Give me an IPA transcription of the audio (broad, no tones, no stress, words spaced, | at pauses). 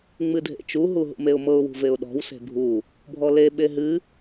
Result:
ŋ͡mɨdʱḛt͡ʃu ɦuɦṵmeʊ̯mɤʊ̯ wṳveʊ̯ɗɔ̤w se̤bʱu | bʱɔle ɓeɦɨ